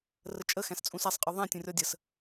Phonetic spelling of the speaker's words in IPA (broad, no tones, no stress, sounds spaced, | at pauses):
r ə t͡ʃʼ ə x æ̃ s t͡sʼ ũ s æ sˤ qʼ ɔ ðˤ æ̃ tʲ ũ rʲ ɔ dʲ ə s